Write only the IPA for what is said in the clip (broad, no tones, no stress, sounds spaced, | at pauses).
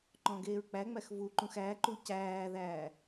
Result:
ǃ ɔ̃ ɡ eː ɹ k͡p æ ŋ͡m æ x v u ǃ ũ x æ ǃ u c æː ð æː